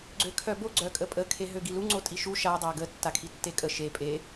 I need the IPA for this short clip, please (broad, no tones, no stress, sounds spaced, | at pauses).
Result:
ɡ͡ǀ ø kʰ œ b o ɡ͡ǀ œ kʼ ə pʼ ə kʰ e ɦ ø ɡ i l u ŋ͡ǀ o tʼ i ʃ u ʃ a dˤ a ɡ ə tː a kʰ i tː e kʼ ə ʃ e pʼ e